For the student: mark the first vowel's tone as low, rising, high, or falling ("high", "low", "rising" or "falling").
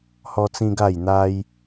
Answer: high